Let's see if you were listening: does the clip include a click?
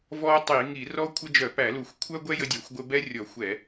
no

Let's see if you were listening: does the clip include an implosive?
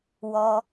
no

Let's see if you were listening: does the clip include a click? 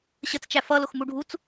no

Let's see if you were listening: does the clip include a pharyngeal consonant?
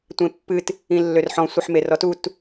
yes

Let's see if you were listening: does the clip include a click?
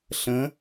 no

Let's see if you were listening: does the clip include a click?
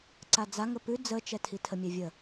yes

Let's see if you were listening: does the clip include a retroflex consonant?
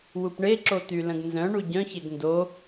yes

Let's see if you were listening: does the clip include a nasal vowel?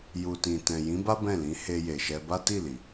yes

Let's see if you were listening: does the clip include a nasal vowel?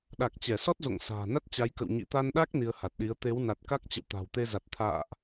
no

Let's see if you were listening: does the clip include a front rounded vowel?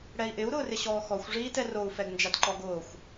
no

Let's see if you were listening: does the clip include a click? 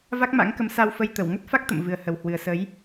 no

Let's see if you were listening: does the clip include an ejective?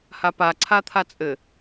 yes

